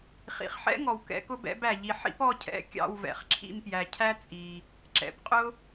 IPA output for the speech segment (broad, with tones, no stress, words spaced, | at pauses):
χḭ˨χħɛ̰˥ŋɔ˨w kɛ̰˧˥kʊ˥bɛ̰˧˥bæ˨ ʎi˨ħḭ˥p ɔ˥cʰɛ̰˧˥ kʲɑ̰˦˨wvɛ̰˨χǁʰḭ˦˨mpjæ˨ cʰæ˥t͡sʼi˨ | ǁɛ̰˨pqʼʊ˥